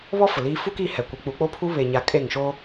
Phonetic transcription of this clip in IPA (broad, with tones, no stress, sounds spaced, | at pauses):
β ɔ˦ f ʊ˨ l iː˦ f u˦ k i˦˨ h ɛ˨ kʷ ɪ˨˦ k͡p u˨˦ k͡p o˦ pʰ u˦ β e˨ ɲ a˨ kʼ e˦˨ ŋ ʃ o˦